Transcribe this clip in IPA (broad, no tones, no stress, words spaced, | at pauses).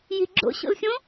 ji̤ɡ͡ǁo̰ɕo̰l xʲõ